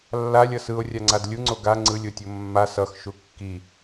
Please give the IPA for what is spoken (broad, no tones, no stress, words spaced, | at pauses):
lːalʲʌ sɯo̯rʲaŋ͡ǀad lʲuŋ͡ǀo ɡa ŋ͡ǀɯlʲotʲo mːa sʌxʃu kːi